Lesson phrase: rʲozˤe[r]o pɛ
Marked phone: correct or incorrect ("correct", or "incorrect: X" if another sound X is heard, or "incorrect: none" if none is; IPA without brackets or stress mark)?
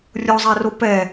correct